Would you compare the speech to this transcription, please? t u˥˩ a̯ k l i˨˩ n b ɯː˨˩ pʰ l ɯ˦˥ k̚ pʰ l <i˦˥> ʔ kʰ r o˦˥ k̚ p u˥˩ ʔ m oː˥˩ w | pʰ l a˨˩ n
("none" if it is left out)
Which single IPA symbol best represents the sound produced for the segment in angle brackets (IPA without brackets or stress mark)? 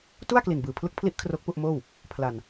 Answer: i˦˥